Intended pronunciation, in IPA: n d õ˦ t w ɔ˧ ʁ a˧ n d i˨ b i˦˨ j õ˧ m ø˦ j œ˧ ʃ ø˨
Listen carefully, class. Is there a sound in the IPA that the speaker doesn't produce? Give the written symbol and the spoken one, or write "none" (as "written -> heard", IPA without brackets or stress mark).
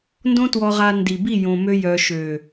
none